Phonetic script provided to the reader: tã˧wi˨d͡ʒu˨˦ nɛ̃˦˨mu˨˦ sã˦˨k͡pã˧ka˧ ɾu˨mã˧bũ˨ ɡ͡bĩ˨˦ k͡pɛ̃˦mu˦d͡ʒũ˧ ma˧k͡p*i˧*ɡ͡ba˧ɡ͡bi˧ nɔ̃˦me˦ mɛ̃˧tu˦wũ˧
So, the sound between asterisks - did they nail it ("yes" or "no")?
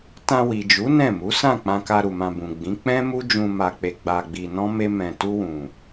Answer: no